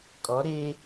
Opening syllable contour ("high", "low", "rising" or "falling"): rising